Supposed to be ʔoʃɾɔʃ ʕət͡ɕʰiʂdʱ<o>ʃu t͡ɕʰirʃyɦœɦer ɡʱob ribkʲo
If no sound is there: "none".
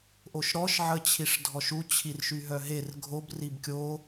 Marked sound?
ɔ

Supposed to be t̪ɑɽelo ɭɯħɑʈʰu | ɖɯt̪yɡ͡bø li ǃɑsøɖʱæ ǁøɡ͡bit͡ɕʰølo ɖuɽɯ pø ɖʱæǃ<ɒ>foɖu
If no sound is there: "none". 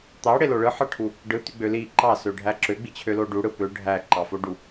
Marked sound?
ɑ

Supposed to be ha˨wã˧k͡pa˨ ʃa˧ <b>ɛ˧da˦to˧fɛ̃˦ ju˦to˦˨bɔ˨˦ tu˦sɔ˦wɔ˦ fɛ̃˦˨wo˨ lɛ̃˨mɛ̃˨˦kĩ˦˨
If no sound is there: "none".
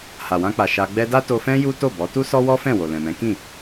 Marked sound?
ɡ͡b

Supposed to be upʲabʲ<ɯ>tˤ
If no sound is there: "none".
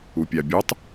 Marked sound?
u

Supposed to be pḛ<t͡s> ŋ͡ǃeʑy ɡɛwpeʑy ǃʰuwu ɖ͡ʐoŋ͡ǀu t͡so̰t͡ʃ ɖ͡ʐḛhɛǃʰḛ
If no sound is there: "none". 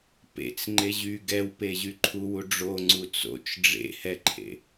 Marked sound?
t͡s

